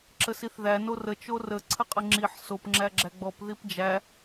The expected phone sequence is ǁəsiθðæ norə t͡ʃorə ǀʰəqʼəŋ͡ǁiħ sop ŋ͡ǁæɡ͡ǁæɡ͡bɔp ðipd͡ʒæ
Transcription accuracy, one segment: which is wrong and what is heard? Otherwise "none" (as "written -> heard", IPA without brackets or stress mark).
none